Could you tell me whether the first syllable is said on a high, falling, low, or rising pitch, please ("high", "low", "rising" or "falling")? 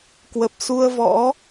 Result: low